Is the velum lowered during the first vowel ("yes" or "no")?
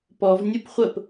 no